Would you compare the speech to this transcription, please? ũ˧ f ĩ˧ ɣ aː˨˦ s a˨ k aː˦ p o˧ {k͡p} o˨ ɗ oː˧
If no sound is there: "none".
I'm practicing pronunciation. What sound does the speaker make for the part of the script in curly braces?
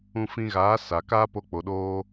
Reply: k͡p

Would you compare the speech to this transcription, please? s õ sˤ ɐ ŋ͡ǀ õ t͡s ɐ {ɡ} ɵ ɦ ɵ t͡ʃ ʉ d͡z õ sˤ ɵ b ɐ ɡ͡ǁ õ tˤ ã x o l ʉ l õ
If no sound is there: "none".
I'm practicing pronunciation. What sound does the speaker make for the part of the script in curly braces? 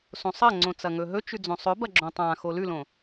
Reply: ŋ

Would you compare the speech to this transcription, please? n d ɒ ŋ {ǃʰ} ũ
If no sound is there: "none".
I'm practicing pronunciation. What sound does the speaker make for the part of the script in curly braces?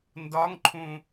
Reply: ǃʰ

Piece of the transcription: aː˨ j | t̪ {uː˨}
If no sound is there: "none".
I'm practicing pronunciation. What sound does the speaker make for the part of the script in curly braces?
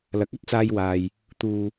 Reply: uː˨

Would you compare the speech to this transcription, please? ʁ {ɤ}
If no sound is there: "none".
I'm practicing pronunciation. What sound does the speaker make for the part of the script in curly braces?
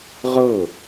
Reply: ɤ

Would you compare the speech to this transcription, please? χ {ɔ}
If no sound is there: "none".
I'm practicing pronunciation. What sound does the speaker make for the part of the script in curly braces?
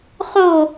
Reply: o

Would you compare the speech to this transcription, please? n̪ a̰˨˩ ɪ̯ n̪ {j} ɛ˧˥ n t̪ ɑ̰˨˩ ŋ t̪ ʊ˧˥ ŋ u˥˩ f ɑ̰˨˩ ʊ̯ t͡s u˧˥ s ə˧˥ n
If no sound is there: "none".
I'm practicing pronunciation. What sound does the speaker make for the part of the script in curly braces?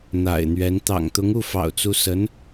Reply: ɥ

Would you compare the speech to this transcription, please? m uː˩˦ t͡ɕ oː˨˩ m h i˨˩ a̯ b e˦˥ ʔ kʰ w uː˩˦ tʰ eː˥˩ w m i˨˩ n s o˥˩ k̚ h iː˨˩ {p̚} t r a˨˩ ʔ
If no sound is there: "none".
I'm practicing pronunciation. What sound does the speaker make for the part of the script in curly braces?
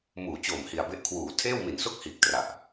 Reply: k̚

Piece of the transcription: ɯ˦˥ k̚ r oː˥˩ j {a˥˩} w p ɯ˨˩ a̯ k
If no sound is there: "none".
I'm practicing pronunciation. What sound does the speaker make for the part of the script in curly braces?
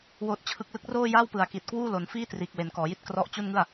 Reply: a˥˩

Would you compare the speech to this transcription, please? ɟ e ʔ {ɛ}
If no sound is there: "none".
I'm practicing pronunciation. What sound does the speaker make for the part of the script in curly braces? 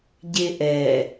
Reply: ɛ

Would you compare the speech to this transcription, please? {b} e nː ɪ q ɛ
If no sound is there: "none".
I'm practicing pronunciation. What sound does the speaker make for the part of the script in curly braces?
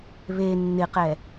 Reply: β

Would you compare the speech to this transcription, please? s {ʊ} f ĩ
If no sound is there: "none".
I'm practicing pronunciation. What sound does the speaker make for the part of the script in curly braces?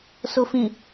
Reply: ʊ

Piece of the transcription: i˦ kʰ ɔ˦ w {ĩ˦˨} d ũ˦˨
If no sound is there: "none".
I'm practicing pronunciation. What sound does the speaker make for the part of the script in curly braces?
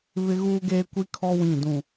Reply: ĩ˦˨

